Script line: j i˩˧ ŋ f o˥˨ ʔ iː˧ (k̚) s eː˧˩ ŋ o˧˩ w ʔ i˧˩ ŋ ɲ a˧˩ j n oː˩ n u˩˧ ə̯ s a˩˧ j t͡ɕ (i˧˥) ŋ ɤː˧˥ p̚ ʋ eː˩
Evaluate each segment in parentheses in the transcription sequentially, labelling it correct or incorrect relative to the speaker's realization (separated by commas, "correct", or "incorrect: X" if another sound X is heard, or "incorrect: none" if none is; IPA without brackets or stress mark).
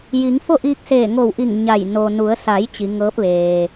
correct, incorrect: i˩˧